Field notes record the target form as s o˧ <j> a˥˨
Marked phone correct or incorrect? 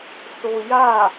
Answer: correct